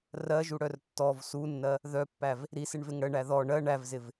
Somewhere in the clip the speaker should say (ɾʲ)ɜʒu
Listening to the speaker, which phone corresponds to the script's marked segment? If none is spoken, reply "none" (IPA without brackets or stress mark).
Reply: r